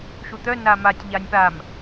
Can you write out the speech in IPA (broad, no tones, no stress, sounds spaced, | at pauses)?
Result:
ʃ u t̪ œ n a m a tʲ ʎ a nʲ p a m